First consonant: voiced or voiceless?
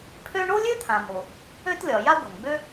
voiceless